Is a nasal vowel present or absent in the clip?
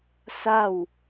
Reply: absent